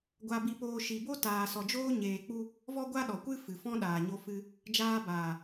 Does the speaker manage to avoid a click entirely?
yes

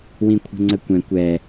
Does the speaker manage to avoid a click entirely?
no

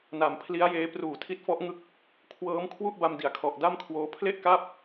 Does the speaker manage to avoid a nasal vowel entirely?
yes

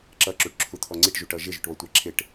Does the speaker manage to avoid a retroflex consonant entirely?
no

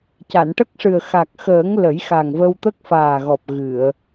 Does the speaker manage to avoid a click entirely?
yes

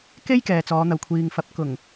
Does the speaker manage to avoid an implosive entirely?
yes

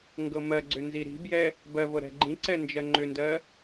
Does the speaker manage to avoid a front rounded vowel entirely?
no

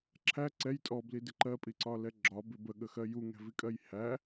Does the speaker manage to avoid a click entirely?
no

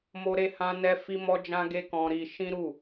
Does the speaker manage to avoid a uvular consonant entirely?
yes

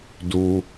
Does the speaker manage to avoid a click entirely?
yes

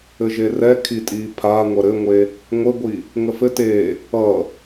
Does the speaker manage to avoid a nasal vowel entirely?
yes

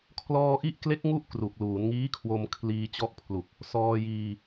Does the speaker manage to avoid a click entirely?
yes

